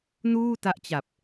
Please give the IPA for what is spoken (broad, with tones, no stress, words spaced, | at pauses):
nuː˥˩ta˦˥ʔt͡ɕa˨˩p̚